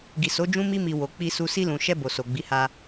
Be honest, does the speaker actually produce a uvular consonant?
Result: no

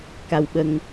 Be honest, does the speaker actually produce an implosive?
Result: yes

